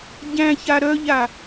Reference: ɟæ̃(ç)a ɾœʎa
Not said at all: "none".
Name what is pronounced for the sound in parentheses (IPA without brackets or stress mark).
ç